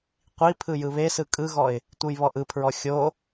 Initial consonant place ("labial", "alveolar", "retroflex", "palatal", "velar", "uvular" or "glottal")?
uvular